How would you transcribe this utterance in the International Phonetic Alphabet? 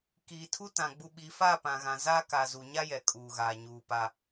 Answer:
k iː˨ tʰ u˦ t ã˨ ɡ͡b u˨ ɓ i˨ f aː˦˨ p ã˨ ɣ ã˨ z a˦ k a˨ z u˨ ɲ a˦ j ɛ˨ kʼ uː˨ ɣ aː˨ ɲ uː˨ p a˦

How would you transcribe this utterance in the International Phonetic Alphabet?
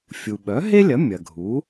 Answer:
fʲ u˩ ɓ œ˩˥ ɦ e˥ lʲ ɐ˩˥ mʲ ɐ˩ ɡʱ u˩˥

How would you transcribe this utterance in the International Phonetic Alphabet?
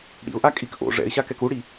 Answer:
ɽ ḭ ʊ̯ ʔ a kʼ i k ʔ o̰ ʐ ɛ̰ ɪ̯ ɕ a k ɛ k u ɽ i

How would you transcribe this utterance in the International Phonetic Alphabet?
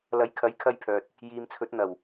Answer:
l ɐ˨˥ j kʰ ɐ˨˥ j kʰ ɐ˧ j pʰ œː˨ t̚ | j iː˨ m t͡sʰ ɵ˨˥ t̚ n̪ ɐ˨˩ w

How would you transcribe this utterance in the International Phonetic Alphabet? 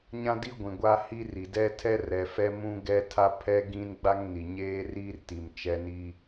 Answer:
ɲ ã˦ d i˦ ɡʷ ĩ˨ ɡʷ a˦ h i˦ r i˨ d ɛ˦ tʰ ɛ˦ r ɛ˨ f ɛ˦ m ũ˦ ɡ ɛ˦ tʰ a˦ pʰ ɛ˦ ɡ ĩ˦ n ɡ͡b a˦ ŋ n i˨ ɲ eː˦ r iː˦ r t i˨ m t͡ʃ ɛ˦ n i˦

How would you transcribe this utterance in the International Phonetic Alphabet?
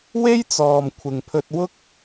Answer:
w e˥ j t͡s ɔː˨ m kʷʰ ɪ˨ ŋ pʰ ɵ˧ t̚ w ʊ˥ k̚

